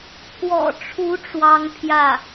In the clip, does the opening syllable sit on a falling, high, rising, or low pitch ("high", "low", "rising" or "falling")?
low